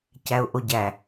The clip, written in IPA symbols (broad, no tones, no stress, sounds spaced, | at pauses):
c æ ʊ̯ ʔ o ɟ æ